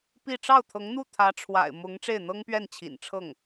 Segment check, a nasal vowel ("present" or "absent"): absent